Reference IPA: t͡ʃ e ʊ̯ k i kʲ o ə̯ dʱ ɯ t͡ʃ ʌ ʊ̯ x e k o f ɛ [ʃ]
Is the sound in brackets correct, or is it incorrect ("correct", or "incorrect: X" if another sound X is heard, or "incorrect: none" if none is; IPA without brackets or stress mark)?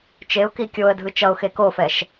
correct